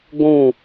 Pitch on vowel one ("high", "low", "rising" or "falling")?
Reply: falling